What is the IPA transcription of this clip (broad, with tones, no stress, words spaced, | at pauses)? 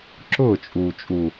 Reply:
ǁʊː˦˨t͡ʃʼuː˨t͡ʃʼu˨